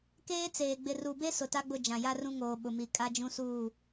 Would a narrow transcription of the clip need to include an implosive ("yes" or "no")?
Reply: yes